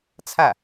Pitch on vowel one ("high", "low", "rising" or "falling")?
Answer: falling